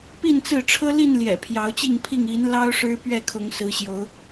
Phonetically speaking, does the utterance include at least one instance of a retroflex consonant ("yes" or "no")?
yes